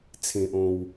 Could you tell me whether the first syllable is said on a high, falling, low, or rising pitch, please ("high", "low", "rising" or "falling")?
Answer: low